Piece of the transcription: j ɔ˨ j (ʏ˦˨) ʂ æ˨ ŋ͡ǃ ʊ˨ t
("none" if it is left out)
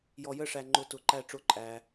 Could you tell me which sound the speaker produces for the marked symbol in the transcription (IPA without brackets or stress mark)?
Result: ə˦˨